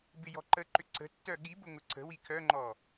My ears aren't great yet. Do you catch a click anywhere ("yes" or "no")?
yes